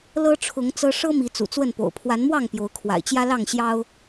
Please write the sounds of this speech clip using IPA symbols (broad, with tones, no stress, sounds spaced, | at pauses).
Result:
l ɤ˦ ʈ͡ʂʰ ʊ˨˦ ŋ t͡s ɤ˦ ʂ ɤ˦ m i˨˦ t͡s ṵ˨˩ t͡s w ə˥˨ n p o̰˨˩ ʊ̯ pʰ w a˨˦ n m w ɑ˥˨ ŋ p j o˨˦ ʊ̯ kʰ w a̰˨˩ ɪ̯ t͡ɕ j ä˦ l ɑ˥˨ ŋ ɕ j ɑ˦ ʊ̯